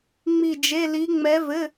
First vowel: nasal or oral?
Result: oral